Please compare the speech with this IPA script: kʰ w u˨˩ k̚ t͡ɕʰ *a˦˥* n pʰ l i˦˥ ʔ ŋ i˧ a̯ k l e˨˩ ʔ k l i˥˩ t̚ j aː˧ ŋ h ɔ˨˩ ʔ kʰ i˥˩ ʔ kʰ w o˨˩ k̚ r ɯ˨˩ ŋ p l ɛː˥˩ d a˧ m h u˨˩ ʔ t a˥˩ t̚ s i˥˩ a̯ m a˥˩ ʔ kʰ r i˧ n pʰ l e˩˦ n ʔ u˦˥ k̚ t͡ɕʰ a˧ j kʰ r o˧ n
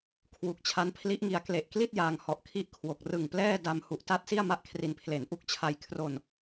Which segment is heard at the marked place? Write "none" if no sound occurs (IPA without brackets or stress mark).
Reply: a˦˥